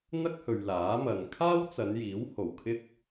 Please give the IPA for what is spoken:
n̪ ɐ˥ k̚ h ɵ˨ ɥ l aː˨˥ m ɐ˨ n kʰ aː˥ w t͡s ɐ˨˧ n j iː˨˥ w h o˨˩ w kʰ ɪ˥ k̚

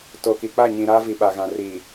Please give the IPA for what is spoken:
t o˨ k i˨ k͡p a˦˨ ɲ ĩ˨ ɾ aː˦ v i˨ ɓ a˨ ɣ ã˨ r iː˨

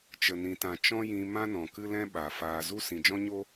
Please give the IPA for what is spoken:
t͡ʃ ə˨ n ĩ˨ t ã˨ t͡ʃ ɔ̃˦ j ĩ˧ m ã˦ n ɔ̃˨ k ɨ˦ l ɛ̃˦ ɓ a˨ f aː˨ z u˦ s ĩ˨ d͡ʒ ɔ̃˦ ɲ o˦

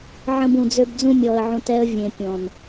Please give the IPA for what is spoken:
ʕ ə̃˧ b ũ˨ d͡z ø˧ b d͡z ũ˧ mʲ ɔ˨ ə̯ ʕ ũ˨ t ɛ˧ ə̯ vʲ ẽ˨ pʲ ɔ̃˨ n

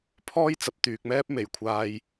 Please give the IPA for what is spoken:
pʰ ɔː˥ j t͡s ɐ˨ p̚ t̪ yː˨ k̚ m ɛː˥ p̚ m e˨˩ j kʷʰ aː˧ j

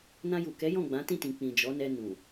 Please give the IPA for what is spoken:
n ã˧ j u˨ k ɛ˨˦ j ɔ̃˦˨ ɡ͡b ã˨˦ t ĩ˦˨ t ĩ˨ k͡p ĩ˨ d͡ʒ ɔ˨˦ n ɛ˧ n ũ˨

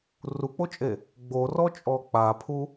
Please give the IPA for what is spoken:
r u k͡p o t͡ʃʼ e | ɡ͡b o r ɔ t͡ʃʼ ɔ k͡p a pʰ u

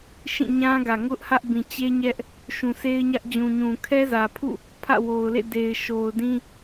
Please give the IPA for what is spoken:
ʃ ĩ˦˨ ɲ ã˦ ɡ ä˨ ŋ ʊ˦ ʔ h ä˦ ʔ b ĩ˨ t͡ɕ e˦ ɲ ɛ˦ ʔ | ʃ ũ˨ sʰ e˦ ɪ̯ ɲ ä˦ ʔ d͡ʑ ũ˨ ɲ ũ˨ kʰ ɛ˦ z ä˨ pʰ ṵ˦˨ | pʰ ä̰˦˨ w o˨ ʊ̯ l ḛ˦˨ d e˨ ɪ̯ ʃ o˨ ʊ̯ d ĩ˦

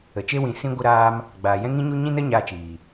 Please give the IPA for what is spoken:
ə˨ t͡ʃ e˦ w ĩ˨˦ s ĩ˧ ɡʷ ə˧ ɾ aː˧ m | ɡ͡b aː˨ j ɛ̃˦ ŋ ĩ˦ ɲ u˦ ɲ ĩ˦ n ə˦ ɲ aː˧ t͡ʃ iː˨

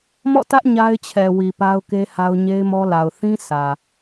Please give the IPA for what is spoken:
m ɔ̰˦˨ t ä˦ ʔ ɲ a˦ ɪ̯ t͡ɕʰ ɛ˨ w i˨ p a˦ ʊ̯ k e˦ h a˦ ʊ̯ ɲ e˦ ɪ̯ m ɔ˦ l a˨ ʊ̯ θ ĩ˦ s ä˨

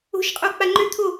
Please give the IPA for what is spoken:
o̤ ʃ qʼ o k͡p a ŋ͡ǃ ø t̪ʰ o

